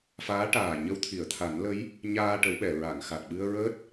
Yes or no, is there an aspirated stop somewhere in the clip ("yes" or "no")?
yes